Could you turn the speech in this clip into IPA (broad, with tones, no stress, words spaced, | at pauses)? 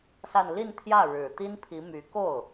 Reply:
sa˥˧n li˥˧nt̪ʰjä˥˩ ɻɻ̩˨˩ t̪i˥npʰi˧˥ my˧˥ ko˥˩ʊ̯